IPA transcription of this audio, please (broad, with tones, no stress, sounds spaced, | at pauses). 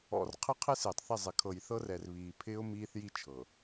ɔ̰˨ r qʰ ɪ˦ qʰ ɪ˦ s ɪː˨ tˤ θ ɪ˦˨ zˤ ɪ˨ kʰ ɤ˨ j θ ɤ˦ r ɛ˨ r β iː˨ pʰ ɪː˦ ʊ̯ m iː˦ θ j i˦ t͡ʃʰ ɤ˨